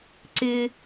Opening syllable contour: high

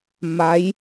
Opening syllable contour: rising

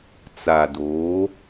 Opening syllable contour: low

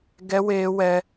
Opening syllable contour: high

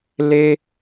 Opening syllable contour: high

